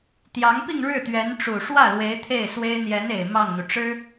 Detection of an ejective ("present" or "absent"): absent